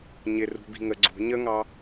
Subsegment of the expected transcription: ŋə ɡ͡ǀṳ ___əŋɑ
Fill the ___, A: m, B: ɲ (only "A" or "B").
B